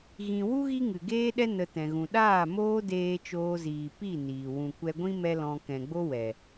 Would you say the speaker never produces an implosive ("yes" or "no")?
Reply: no